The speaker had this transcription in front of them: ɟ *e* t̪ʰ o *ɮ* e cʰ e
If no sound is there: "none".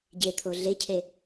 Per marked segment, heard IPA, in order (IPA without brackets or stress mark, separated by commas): e, ɮ